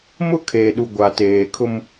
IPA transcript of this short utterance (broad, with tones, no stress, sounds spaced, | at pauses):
m ʊ˦ kʰ eː˨ ɗ u˨ ɡʷ a˨ t eː˨ kʰ ʊ˦ m